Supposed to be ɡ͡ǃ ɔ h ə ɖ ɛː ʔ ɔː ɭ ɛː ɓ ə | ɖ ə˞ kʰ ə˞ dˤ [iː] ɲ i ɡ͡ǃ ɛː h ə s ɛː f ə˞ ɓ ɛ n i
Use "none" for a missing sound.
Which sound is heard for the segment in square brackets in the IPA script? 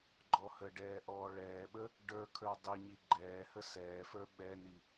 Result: i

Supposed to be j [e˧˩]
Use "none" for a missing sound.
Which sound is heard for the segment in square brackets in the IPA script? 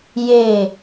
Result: e˧˩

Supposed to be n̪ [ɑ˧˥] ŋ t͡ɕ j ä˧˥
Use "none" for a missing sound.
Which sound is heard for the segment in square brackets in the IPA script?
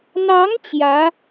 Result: ɑ˧˥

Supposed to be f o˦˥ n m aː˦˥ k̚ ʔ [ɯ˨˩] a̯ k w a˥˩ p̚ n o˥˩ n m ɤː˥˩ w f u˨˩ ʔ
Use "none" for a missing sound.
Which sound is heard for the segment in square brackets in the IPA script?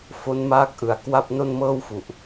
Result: ɯ˩˦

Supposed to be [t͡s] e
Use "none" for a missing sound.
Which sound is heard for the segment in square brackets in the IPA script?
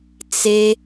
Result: t͡s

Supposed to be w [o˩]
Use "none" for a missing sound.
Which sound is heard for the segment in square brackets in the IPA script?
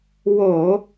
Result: o˧˩˧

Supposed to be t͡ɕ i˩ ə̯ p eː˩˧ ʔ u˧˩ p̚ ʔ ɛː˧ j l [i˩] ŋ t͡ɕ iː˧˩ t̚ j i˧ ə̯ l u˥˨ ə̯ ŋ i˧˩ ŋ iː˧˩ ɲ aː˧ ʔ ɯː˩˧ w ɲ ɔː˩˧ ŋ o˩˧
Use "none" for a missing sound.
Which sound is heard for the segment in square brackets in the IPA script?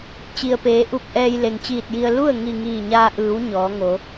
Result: e˩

